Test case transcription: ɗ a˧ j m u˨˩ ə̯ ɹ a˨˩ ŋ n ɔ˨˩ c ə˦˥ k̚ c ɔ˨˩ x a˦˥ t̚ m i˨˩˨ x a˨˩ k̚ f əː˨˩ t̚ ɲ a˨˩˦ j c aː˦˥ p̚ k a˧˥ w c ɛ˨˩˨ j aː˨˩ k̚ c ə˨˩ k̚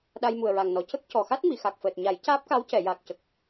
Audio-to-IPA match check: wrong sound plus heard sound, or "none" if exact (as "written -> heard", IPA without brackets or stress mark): none